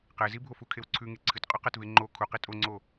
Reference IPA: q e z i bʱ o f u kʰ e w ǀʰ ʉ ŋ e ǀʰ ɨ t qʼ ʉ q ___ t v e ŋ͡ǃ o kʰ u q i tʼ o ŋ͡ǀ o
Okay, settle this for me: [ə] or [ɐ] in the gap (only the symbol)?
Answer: ɐ